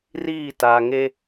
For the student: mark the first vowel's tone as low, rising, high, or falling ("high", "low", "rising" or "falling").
falling